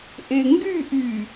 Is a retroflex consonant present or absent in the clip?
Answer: absent